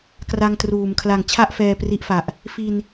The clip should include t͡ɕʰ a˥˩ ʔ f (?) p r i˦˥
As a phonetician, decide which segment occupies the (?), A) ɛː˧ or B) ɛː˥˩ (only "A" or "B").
A